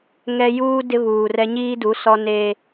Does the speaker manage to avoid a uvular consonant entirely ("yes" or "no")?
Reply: yes